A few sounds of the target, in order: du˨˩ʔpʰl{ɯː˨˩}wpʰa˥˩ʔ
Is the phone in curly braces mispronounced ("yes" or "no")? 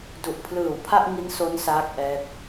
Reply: no